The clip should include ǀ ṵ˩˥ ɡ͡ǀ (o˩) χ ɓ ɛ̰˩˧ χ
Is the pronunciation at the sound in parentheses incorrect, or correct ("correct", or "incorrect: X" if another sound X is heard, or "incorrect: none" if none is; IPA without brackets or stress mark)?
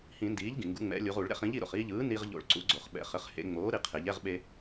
correct